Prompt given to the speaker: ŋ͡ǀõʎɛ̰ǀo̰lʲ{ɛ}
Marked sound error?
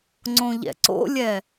no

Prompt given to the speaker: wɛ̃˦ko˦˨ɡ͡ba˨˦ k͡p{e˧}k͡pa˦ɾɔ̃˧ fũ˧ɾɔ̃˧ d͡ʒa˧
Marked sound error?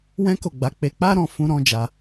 no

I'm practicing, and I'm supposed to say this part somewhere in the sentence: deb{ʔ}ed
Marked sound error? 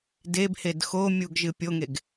yes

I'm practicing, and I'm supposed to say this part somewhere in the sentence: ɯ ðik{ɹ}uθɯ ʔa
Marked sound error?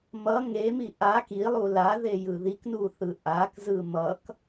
yes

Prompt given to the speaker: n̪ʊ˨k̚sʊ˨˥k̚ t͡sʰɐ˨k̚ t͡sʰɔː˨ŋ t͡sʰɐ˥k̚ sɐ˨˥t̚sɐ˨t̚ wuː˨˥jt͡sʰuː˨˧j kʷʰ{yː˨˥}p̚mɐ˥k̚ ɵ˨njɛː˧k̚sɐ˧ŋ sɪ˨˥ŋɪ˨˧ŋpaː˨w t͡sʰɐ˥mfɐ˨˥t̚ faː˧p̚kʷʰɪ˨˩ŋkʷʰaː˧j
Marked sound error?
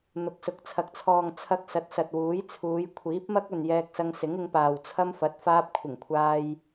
yes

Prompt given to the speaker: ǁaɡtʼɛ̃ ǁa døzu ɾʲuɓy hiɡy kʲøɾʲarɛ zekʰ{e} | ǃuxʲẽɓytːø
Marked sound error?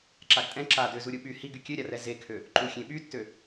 yes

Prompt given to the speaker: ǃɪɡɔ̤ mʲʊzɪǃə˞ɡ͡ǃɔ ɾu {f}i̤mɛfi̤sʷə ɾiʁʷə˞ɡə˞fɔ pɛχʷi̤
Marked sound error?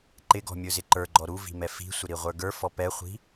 yes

